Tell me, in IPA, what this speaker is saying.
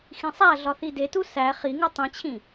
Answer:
x ĩ sˤ æ ɮ ɒ θ i d e t u s æ χ i ŋ u tˤ ĩ t͡ɕʰ ĩ

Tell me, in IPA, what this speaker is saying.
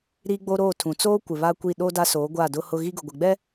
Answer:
ɾ i˦ ɡ͡b o˦ ɾ oː˦˨ tʰ ũ˨ t͡s oː˦ kʷ ɪ˨ β a˦ kʷ i˦˨ ɗ oː˦ d a˦ s oː˨˦ ɡʷ a˦˨ d ʊ˦ h ʊ˦ ɣ i˦ ɡ ʊ˨ ɡʷ ɪ˨ ɡ͡b ɛ˦

